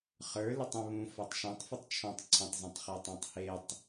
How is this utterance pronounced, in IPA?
χ ə˞ l ɛ tˤ ə̃ β ũ f a tˤ ʃ ã tˤ f ə tˤ t͡ʃʰ ɔ̃ tˤ ǀʰ ə̃ tˤ z ũ tˤ χ e tˤ ã tˤ h e tˤ

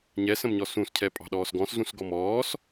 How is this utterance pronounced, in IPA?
ɲ ɛ s ə̃ m ɲ ɔ s ũ s cʰ ɛ pʼ ɑ̤ ɗ ɔː s ɡ ɔ̃ s z ũ s ɡ ɔ m ɔː s

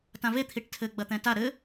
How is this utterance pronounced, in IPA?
t ã v e t̪ʰ i ʈ tʰ ɘ ɡ͡b ɐ t̪ ɛ̃ t a ɾ ɘ

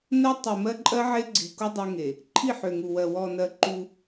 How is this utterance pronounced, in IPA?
n ɜ˦ tˤ u˨ m ɜ˦ ǃʼ ɜ˦ ʕ e˦ ɡ͡ǀ i˨ k u˦ dˤ e˦ ŋ e˨ | ǃʰ i˦˨ ħ ø˨ ŋ u˨ w ɜ˨ w ɔ˨ n ɜ˨ ǃ u˦

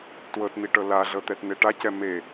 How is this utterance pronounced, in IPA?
t w ɤ t n̪ i ʈ ɤ l a ɮ ɤ t̪ ɛ t n̪ e ʈ a c ɛ m e

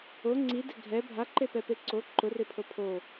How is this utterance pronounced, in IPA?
o ŋ͡ǀ i d ɪ ɡʱ ɛ bʱ a ǃ e p ɛ p e ǀ o ǃ ʊ r ɪ pʰ o pʰ o

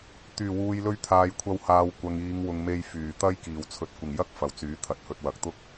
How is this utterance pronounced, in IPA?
t̪ yː˨˩ w uː˨ j l ɵ˧ ɥ t̪ʰ aː˨ j kʷʰ ɐ˧ w h aː˨ w kʷ ɐ˨ ŋ iː˨˧ ŋ w ʊ˨ ŋ m e˧ j f yː˨˩ t̪ ɐ˥ j k iː˨˩ w t͡sʰ ɵ˨ t̚ kʷ ɪ˨˩ ŋ j ɐ˥ k̚ f ɐ˨ w t͡s yː˨˥ t̪ʰ ɐ˨ t̚ h ɵ˧ t̚ w ɐ˨ k̚ t̪ ʊ˥ k̚

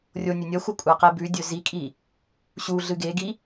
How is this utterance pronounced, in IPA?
rʲ o nʲ ɵ nʲ ɐ xʷ ɐ kʷʼ a q e b ʉ dʲ ɵ z i kʼ i | ɕ u ɮ ɨ ɡ e ɡ i

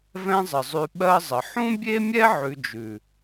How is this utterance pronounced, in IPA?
v ɛ̃˦ zˤ ə˨ zˤ ʉ˧ ɓ ɜ˦ zˤ ə˨ ħ ũ˦ bʲ e˦ mʲ ɛ˦ ʕ ʉ˧ d͡ʒ ʉ˨

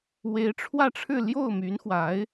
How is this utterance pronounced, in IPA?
w e˧˥ ɪ̯ ʈ͡ʂʰ w ä˥˧ ʈ͡ʂʰ ɻ̩˥˧ l j o˥˩ ʊ̯ m y˧˥ n x w a˧˥ ɪ̯

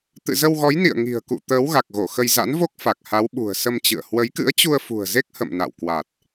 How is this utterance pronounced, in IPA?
t̪ ɨ̰˧˨ z ə˧ w ɣ ɔ˨˦ j n ḭ˧˨ ə̯ ŋ i̤˨˩ ə̯ k ṵ˧˨ t̪ əː˨˦ w ɣ a˨˩ k̚ ɣ o˧˩ x ə˧ j z a̰˧˥ n v o˦˥ k̚ f a˨˩ k̚ h a˨˦ w ɓ ṳ˨˩ ə̯ s ə˧ m t͡ɕ ɨ̰˧˨ ə̯ h w ə˨˦ j k ɨ̰˧˥ ə̯ t͡ɕ u˧ ə̯ f ṳ˨˩ ə̯ z e˦˥ k̚ h ə̰˧˨ m n a̰˧˨ w k w a˨˩ t̚

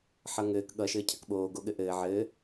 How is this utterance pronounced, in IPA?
ħ ʌ ŋ ɘː k ɠ ʌ ʃ ɘː cʰ ɐ k ɓ oː ɡ o ɠ ɘ ʔ ɘː ʕ ɘː

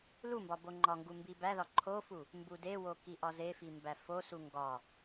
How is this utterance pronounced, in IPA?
l u m b ɒ b o ŋ͡ǃ ɒ ŋ ɡ u m b i b æ ð ɒ ǃʰ o f u | m b u d e w o k i ʔ ɒ z e f i m b æ f o s u ŋ ɡ ɒ

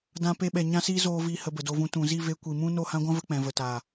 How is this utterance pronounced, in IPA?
d ã˧ p e˧ ɓ ɛ˨ ɲ ã˦ s i˦ z oː˦ v i˦˨ h ə˧ b ə˨ d o˧ v ũ˧ t ũ˨ z i˦˨ v e˧ kʷ i˨ m ũ˦ n o˦˨ h ã˦ ɡʷ ã˦ v ə˦ k͡p ɛ̃˨ v ə˨ t aː˨

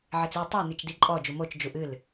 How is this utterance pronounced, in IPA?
ʕ e t͡s i tˤ o n i t͡ʃ d i ǃʼ ɔ d͡ʒ u m o t͡ʃ d͡ʒ u ʔ ɨ l

